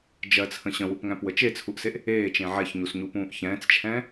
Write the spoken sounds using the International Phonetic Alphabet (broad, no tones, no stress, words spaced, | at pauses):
d͡ʒɜt͡sʰə̃ ɕə̃wupŋæ̃pwə t͡ʃet͡sʰuʔseʔ | eːt͡ʃẽ ʕɛçɲusɲupũːʔ çɛ̃ːt͡st͡ʃʰɛ̃ː